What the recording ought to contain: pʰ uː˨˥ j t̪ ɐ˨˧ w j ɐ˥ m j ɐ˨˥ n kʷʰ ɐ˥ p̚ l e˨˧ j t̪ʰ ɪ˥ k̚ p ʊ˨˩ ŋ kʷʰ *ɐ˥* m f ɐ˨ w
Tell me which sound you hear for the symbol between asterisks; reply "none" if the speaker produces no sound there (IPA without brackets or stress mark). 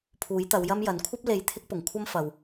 ɐ˥